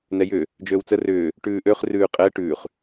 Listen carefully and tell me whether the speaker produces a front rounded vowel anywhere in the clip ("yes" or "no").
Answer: yes